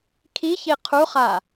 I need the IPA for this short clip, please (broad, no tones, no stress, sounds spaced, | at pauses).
kʰ i ç i qʰ u χ a